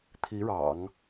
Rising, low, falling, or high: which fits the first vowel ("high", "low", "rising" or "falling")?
rising